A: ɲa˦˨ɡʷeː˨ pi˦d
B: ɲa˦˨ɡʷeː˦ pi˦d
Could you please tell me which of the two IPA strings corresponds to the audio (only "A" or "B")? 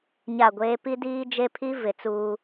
B